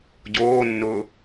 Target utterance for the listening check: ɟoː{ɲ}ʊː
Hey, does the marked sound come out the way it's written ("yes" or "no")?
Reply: no